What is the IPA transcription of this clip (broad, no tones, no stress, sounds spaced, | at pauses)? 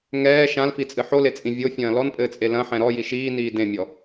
ŋ ɛː ʃ ã l f i t͡sʼ ɨ ħ o l e t͡sʼ ĩ vʲ o fʲ ɐ̃ː l ɔ n pʼ ɘː t͡sʼ e l ɐ̃ ħ ɛ̃ ɾ ɔ j i ʃ iː n iː d ẽ mʲ ɔ